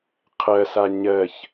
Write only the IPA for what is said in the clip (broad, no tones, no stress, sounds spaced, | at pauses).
qʰ ɜ s a ɲ ɜ ç